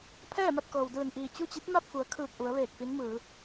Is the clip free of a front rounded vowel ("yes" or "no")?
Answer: yes